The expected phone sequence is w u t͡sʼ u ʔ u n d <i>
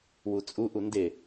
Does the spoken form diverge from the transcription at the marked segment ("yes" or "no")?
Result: yes